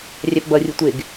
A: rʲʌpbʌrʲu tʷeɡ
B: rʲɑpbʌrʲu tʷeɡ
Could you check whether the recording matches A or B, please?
B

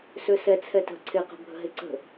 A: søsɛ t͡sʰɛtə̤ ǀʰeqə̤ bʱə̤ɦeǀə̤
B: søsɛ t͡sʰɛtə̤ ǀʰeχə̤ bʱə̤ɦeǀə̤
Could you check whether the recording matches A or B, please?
A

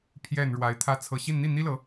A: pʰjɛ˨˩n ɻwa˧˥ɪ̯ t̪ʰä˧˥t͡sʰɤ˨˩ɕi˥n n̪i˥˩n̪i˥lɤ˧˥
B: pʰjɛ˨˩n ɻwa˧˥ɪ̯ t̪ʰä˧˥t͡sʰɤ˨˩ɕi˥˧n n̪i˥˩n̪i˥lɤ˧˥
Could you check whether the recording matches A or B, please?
B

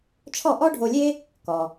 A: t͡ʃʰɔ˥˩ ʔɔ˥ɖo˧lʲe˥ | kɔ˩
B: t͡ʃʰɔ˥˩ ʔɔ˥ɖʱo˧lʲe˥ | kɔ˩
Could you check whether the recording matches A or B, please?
B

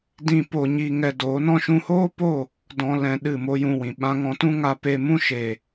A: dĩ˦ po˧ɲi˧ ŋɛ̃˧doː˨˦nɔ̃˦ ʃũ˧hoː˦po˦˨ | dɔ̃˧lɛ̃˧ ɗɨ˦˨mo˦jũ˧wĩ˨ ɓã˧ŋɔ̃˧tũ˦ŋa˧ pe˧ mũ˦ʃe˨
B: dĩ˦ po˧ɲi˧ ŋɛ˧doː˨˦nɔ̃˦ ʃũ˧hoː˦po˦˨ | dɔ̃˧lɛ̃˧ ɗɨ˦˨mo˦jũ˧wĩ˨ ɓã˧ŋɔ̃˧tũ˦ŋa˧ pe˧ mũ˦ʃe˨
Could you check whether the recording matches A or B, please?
B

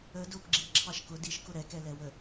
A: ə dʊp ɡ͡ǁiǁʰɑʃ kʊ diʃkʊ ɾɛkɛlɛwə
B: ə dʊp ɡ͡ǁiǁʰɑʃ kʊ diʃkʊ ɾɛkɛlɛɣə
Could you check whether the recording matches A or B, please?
A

